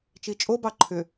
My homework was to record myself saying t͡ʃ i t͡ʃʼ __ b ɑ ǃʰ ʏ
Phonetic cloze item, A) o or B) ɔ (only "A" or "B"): A